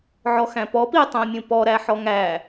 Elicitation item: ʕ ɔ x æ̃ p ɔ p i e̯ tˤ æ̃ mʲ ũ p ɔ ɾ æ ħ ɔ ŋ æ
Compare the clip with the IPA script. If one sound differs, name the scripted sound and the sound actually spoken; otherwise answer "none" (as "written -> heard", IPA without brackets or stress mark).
none